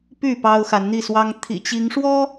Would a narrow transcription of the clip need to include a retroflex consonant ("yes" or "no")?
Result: yes